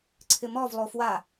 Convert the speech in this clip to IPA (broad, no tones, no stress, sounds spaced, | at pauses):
ǀʰ ɪ m ɔ v lˠ o f w a